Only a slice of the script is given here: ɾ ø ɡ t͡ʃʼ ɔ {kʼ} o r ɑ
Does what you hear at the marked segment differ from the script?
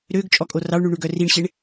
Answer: no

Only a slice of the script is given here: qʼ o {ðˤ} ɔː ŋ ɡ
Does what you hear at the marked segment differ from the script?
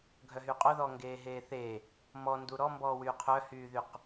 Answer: yes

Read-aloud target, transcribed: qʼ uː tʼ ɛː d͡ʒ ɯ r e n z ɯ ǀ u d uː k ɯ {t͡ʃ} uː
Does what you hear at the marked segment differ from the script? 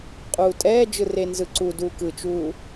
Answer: no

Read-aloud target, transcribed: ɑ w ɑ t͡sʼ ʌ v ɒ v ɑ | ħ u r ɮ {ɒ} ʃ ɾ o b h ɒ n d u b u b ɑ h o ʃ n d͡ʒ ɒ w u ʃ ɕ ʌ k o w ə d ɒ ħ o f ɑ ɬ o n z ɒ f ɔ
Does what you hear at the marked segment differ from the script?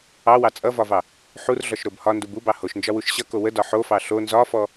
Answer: no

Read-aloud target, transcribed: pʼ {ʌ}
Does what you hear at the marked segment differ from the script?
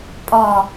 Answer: yes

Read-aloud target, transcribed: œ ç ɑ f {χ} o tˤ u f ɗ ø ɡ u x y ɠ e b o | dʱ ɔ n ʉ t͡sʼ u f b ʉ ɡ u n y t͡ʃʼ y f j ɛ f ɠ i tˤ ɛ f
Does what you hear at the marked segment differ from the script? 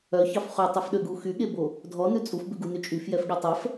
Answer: no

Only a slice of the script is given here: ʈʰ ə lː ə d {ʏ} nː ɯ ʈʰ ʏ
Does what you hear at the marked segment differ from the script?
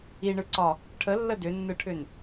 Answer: no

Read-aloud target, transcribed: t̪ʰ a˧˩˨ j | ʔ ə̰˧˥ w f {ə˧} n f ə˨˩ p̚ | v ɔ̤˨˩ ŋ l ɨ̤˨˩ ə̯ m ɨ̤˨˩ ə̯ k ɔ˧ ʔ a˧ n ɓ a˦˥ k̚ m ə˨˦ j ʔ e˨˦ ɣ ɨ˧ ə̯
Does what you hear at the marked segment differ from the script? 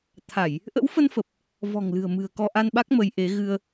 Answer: no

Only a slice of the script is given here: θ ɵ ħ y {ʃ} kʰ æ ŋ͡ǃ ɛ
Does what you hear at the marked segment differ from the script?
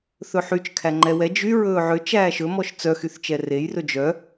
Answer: yes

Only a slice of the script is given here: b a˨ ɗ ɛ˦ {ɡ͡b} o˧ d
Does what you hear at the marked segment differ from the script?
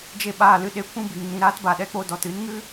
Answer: yes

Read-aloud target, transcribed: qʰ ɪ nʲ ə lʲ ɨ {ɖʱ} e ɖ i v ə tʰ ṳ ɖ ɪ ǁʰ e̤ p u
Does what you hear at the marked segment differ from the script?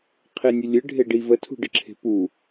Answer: no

